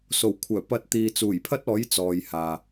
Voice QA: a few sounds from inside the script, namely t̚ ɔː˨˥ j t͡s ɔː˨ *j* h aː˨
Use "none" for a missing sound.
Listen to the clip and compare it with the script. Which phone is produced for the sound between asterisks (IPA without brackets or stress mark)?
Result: j